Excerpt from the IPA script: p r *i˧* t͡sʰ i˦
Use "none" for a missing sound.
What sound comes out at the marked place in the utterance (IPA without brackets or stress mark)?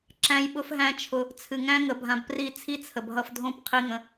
i˦˨